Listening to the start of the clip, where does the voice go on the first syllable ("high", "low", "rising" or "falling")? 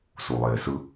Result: low